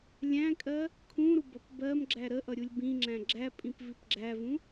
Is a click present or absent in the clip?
present